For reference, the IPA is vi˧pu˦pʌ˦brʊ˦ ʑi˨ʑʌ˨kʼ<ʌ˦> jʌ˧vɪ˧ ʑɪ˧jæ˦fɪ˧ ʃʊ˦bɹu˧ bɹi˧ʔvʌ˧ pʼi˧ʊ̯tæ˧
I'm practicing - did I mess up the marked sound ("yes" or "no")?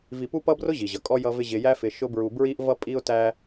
yes